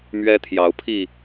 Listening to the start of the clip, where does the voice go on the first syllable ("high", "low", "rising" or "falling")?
high